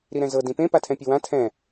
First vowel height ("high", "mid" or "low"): high